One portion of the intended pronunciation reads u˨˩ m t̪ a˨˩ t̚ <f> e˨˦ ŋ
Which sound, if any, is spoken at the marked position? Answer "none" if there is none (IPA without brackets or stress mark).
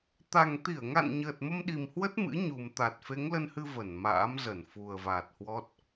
f